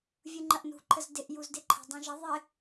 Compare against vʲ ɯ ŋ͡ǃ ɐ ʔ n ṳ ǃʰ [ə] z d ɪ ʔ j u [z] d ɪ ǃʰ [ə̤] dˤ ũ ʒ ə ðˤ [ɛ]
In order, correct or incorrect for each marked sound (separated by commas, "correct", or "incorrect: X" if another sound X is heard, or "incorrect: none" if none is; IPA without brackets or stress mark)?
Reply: correct, correct, correct, incorrect: ɪ